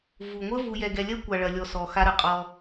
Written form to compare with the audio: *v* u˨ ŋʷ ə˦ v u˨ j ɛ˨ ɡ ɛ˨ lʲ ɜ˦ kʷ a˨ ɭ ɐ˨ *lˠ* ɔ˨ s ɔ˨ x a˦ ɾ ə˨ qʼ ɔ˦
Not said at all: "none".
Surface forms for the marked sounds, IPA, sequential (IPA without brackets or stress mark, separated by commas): v, lʲ